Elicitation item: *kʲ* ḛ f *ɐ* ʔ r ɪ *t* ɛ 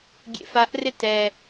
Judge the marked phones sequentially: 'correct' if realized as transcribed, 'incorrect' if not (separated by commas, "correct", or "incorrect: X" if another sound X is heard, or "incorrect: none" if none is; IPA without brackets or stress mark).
incorrect: ɡʲ, incorrect: a, correct